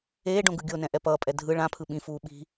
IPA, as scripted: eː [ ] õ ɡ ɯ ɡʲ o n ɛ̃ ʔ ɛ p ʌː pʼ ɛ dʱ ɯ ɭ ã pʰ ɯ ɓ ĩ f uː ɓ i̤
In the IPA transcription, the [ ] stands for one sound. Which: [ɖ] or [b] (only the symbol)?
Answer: ɖ